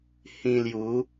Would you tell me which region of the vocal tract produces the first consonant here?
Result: throat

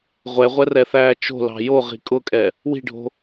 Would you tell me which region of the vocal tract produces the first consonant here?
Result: uvula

